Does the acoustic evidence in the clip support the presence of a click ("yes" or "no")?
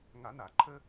yes